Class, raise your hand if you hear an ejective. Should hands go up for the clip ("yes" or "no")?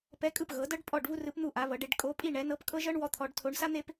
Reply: yes